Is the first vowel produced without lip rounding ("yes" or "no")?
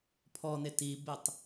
no